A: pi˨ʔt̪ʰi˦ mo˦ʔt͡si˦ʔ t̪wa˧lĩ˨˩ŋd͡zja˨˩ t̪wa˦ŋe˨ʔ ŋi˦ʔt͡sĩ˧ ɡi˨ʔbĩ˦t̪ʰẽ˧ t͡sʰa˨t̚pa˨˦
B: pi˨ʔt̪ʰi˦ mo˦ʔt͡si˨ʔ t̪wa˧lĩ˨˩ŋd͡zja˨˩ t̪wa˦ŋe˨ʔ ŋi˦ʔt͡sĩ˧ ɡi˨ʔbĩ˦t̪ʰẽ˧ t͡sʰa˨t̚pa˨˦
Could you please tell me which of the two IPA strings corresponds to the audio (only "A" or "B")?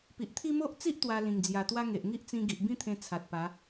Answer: A